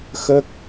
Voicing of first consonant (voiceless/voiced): voiceless